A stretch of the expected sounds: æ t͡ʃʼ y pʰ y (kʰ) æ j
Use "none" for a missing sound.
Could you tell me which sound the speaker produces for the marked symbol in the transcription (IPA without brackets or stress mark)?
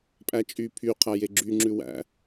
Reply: qʰ